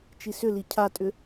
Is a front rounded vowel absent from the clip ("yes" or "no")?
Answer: no